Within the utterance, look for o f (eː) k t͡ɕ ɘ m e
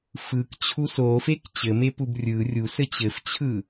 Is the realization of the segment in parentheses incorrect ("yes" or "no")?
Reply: yes